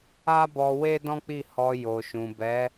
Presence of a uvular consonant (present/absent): absent